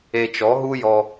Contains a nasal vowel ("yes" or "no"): no